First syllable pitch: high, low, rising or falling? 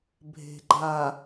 low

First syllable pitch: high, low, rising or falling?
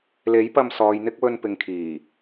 rising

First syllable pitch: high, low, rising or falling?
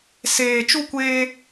low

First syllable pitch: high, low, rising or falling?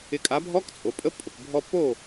rising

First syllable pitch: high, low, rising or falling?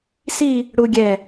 falling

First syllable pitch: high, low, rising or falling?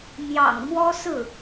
low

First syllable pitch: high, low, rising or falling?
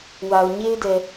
low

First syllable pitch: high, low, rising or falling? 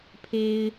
high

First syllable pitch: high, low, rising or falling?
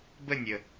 falling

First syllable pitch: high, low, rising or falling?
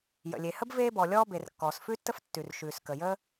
low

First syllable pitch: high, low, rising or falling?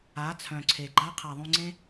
rising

